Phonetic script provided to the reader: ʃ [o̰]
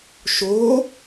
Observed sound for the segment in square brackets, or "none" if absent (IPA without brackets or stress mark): o